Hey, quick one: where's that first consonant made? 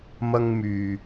lips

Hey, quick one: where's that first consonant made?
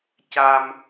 palate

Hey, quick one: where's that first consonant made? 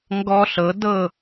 velum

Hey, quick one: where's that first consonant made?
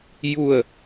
palate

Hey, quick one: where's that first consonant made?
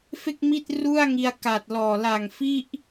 lips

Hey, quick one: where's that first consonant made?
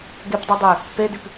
velum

